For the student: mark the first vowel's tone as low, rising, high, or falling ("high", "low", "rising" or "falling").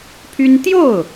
high